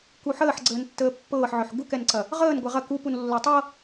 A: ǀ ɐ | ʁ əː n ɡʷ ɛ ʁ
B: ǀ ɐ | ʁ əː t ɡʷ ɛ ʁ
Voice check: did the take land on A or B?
A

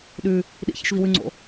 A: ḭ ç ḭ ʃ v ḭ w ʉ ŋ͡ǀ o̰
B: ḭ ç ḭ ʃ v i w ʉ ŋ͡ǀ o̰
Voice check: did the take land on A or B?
B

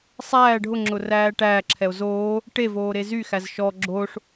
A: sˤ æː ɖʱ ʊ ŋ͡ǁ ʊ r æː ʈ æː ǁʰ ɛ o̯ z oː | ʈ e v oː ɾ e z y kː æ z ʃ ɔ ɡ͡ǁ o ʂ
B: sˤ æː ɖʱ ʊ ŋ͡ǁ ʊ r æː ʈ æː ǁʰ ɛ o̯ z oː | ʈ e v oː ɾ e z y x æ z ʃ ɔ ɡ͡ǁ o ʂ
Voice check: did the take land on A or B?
B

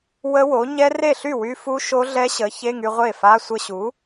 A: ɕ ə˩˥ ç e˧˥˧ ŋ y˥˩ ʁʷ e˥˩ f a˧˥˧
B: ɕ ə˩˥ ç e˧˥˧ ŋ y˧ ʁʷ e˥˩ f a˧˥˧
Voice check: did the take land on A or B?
B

